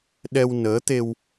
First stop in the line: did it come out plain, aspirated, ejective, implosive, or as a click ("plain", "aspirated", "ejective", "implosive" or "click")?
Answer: implosive